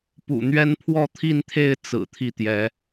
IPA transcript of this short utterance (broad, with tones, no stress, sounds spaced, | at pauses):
p ṵ˨˩ n̪ ɥ ɛ˥ n pʰ w ɔ˥˧ t̪ʰ i˥˧ n t̪ʰ e˥˩ ɪ̯ t͡s ɹ̩˨˩ t̪ʰ i˥˩ t̪ j ɛ˧˥